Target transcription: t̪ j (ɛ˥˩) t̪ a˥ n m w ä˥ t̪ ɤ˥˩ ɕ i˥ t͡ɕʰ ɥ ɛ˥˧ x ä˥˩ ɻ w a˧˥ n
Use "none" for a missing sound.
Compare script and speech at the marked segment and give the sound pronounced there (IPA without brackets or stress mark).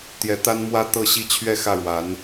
ɛ˧˥